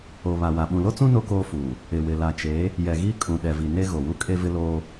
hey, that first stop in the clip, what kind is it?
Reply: implosive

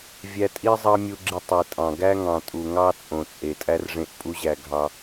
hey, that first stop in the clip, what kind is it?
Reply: ejective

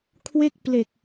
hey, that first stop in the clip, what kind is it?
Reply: aspirated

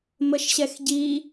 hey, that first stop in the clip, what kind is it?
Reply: plain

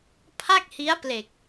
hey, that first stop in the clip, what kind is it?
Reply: aspirated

